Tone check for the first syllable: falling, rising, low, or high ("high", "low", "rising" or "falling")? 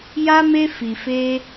high